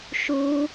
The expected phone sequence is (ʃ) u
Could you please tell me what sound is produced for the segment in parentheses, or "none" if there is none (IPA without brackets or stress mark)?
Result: ʃ